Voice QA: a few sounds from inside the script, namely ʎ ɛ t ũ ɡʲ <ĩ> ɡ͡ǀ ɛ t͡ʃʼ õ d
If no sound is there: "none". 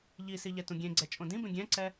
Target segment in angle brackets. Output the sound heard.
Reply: ẽ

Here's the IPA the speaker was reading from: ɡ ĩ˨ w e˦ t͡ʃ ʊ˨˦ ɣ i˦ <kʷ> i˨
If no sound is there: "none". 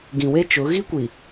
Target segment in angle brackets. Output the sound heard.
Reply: kʷ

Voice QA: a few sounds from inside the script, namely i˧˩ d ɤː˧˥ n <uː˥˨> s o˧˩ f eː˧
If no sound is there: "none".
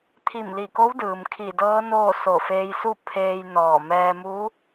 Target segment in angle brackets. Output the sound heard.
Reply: oː˥˨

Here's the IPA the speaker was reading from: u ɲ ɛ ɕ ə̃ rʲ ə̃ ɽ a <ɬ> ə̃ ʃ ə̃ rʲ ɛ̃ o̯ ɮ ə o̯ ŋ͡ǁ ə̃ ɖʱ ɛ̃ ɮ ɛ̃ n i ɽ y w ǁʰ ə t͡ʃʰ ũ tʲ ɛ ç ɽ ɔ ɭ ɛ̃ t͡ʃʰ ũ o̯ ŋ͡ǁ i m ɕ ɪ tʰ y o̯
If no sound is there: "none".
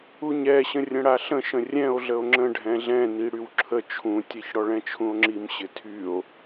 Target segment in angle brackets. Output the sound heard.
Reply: ɬ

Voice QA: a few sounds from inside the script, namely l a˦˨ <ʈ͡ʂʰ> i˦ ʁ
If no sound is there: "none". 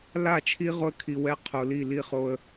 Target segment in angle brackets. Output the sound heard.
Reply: t͡ʃʰ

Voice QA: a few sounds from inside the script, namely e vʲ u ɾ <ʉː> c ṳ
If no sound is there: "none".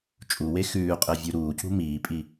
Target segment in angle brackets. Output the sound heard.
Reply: uː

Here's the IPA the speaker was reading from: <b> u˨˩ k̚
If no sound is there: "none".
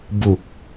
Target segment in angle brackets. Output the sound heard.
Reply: b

